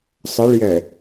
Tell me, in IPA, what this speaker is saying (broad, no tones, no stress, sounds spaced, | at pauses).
sˤ ə ɭ j ɛ